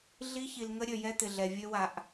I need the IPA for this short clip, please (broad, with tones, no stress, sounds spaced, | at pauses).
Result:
ɮ i˦ ç i˧ l ŋ ə˦ ɾʲ ø˧ j ɛ˦ t̪ ɪ˧ ɮ ɛ˧ vʲ ø˦ w a˧ ʔ